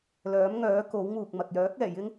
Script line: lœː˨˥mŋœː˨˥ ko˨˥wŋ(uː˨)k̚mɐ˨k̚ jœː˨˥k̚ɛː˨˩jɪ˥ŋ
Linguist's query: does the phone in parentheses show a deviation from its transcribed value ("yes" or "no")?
no